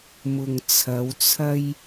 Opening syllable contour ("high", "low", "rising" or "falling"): low